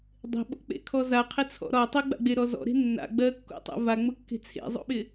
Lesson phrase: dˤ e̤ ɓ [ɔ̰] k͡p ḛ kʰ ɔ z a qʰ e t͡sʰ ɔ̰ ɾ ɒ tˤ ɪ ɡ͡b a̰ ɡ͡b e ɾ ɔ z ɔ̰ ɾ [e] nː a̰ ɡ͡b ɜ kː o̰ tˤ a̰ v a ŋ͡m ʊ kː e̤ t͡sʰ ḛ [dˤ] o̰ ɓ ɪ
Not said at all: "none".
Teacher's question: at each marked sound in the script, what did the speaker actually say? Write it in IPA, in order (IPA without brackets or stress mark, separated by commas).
o̰, e̤, zˤ